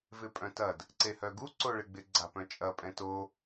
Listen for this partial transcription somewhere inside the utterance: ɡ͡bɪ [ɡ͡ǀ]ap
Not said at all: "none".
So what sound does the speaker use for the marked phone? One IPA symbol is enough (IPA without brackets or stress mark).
ɡ͡ǀ